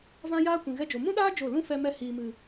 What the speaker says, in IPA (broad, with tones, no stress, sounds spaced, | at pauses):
v ã˦ j aː˦ kʷ ĩ˨ ɣ ɛ˧ d͡ʒ o˨ m ũ˦ ɗ aː˦ d͡ʒ o˦˨ l ũ˦ f ɛ˧ m ɛ˧ h iː˨ m ɨ˨